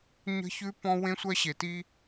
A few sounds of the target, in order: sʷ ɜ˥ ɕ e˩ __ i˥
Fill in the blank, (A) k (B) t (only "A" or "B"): B